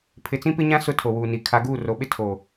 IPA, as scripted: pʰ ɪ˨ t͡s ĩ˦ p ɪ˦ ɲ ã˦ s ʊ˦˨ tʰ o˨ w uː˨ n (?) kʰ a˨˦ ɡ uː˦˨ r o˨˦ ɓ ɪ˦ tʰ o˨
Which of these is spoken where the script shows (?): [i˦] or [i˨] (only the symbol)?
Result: i˨